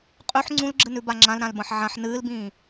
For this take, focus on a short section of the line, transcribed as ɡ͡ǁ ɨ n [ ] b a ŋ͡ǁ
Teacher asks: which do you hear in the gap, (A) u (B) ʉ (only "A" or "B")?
B